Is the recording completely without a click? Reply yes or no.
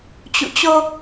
yes